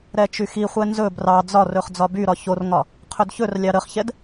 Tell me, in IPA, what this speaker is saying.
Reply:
ɾ ɛ t͡ʃ y x i χʷ ɛ n z ɵ b r ɑ d͡z ɒ r ɵ χ d͡z ɒ b y ɾ ɒ ç o r ŋ ɒ | qʰ ɵ d ç ɵ r lʲ ɑ ɾ ə χ ç ɛ d

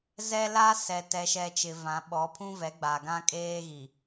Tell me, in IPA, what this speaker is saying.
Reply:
z ɛ˦ l a˦ s ɛ˨ t ɛ˨ ʃ ɛ˨ t͡ʃ ɪ˨ v ã˨˦ ɓ ɔ˨˦ pʰ ũ˦ v ɛ˨˦ ɡ͡b a˨ ɡ ã˦ kʼ eː˦ ɣ i˨

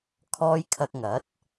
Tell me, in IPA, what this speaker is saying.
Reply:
kʰ ɔː˧ j kʰ ɐ˧ k̚ ŋ ɐ˨˥ t̚

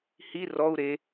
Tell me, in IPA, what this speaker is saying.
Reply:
h i r ɔ u̯ ɾ e

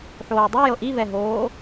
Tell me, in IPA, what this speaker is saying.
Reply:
ħ oː dˤ i j ɤ ʔ i v ɛ ɦ oː

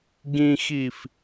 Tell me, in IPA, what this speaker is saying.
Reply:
ɡ ĩ x i f

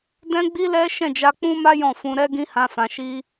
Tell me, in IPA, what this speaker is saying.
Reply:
d ɛ̃˦ ɡ͡b i˦ l ɛ˦ ʃ ɛ̃˦˨ d͡ʒ a˧ k͡p ũ˦ m a˦ j ɔ̃˦˨ f ũ˧ ɾ ɛ˦ ɡ ĩ˦ h ã˧ f ã˧ ʃ i˦

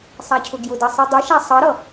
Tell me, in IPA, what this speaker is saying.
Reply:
sˤ a cʰ ʊ ɡ j ʊ d ʌ sˤ i dˤ i ʃ a sˤ ʌ ɾ ʌ

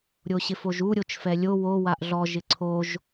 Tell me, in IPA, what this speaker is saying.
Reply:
ɾʲ o ɕ ɪ f o ʒ u ɾʲ o t͡ʃ f ɛ lʲ o w o w a ʔ ɮ ɔ ʒ ɪ ǀʰ o ʒ

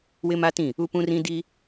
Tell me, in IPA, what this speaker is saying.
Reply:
w ɪ˦ m a˦ t ĩ˦˨ | u˦ p ũ˦ r ĩ˦ d i˦

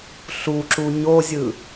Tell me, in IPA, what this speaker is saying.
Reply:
ɬ u ǁ u ɲ o zʲ ɯ

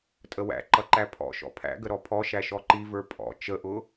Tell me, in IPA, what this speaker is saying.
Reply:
tʼ ə w æ̰ ǃ ʌ ǃ æ pʰ ɔ̰ ʃ ɔ̰ pʰ æ̰ ɡ ə ɾ ɔ pʰ ɔ ʃ æ ʃ ɔ ǃ i v ə˞ pʼ ɔ̰ t͡ʃ ə ʔ ʊ

